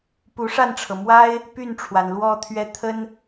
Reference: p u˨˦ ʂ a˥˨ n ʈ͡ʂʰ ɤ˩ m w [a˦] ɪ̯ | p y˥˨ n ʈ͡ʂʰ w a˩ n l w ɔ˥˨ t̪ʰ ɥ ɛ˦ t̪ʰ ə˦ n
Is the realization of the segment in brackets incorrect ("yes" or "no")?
no